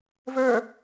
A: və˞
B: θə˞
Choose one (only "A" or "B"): A